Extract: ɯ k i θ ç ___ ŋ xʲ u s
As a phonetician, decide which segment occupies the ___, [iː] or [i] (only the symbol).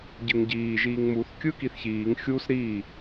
iː